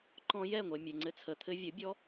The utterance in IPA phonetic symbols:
ǃɔ̃˧jɛ˦˨ŋʷɛ˨ mʲɛ˨ŋ͡ǀɘ˧t͡sʰə˨ t̪ʰɘ˧vʲə˨˦ bʲɔ˧

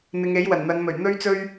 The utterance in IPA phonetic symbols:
n̪ɪ˨˧ŋe˨˥j wɐ˨˩nn̪ɐ˨˧nmɵ˨˩ɥ n̪ɵ˥ɥt͡sɵ˥ɥ

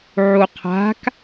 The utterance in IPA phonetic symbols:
ʕuqʰa̤k

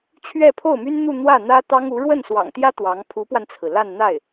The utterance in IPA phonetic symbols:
t͡ɕʰɥɛ˥˧pʰo˥˩ʊ̯my˥nn̪u˥˧ n̪wä˥˩n̪ä˥t̪ɑ˥ŋ u˧˥ ɻwə˥˩nswɑ̰˨˩ŋt̪jä˥ t̪wɑ˧˥ŋ pʰu˧˥pwa˧nt͡sʰɹ̩˩ la˥˧nn̪a˥˩ɪ̯

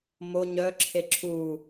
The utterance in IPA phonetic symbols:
mo ɲœ ǁʰeǁʰu

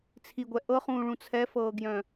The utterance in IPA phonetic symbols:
t͡sʰiɡʷɛ ʔɤχũːɭũ t͡sʰɛfɤːɡjœ̃

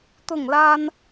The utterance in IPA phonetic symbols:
t̪ʊ˥˩ŋla˥n

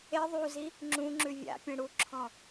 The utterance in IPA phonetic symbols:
e ðˤuzi | ŋ͡ǁũŋ͡ǁʉ vʲa̰ pʲẽɽuǁʰɔ̃

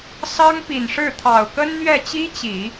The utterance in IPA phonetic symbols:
sɑ˥ŋpi˨˩nʂɻ̩˥˩ t̪ʰɑ˨˩ʊ̯kə˥n n̪ɥɛ˥˩ t͡ɕi˥t͡ɕi˨˩˦

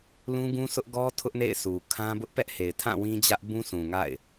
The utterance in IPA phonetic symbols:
lũ˦ɡũ˦sʰʊ˦ʔ ɡɔ˦ tʰʊ˦ʔnḛ˦˨ɪ̯ su˨kʰã˦bʊ˦ʔ pɛ˦ʔhe˨ɪ̯tʰã˦˨ wĩ˦d͡ʑä˦ʔ bũ˦sʰũ˨ŋa̰˦˨ɪ̯

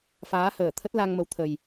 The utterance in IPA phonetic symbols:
faː˨˦həː˧˩t̪ʰə˦˥t̚ la˧ŋmə˨˦wt̪ʰə˨˩j

